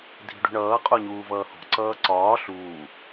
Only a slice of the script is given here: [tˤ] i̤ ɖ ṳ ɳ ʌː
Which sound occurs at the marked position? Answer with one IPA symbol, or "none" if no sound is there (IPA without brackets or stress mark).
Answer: dʱ